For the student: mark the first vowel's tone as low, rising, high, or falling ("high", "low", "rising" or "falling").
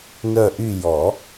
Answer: falling